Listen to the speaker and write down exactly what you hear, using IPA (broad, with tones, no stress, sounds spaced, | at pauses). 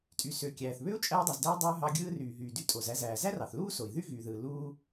tʼ y˩ s ø˩ kʲ æː˩ θ β ø˥ u̯ t͡ʃʼ æː˧ dˤ y˩ z d æ˧ i̯ dˤ ɯː˧ ɦ ɑ˧ ɡʲ ɯː˧ r yː˩ ɦ yː˩ d y˧ tʼ o˩ z æ˧ z æː˩ z æ˥ r ɑ˩ θ l uː˥ s o˩ i̯ ð y˥ ɣ yː˩ ð ɯː˩ l uː˧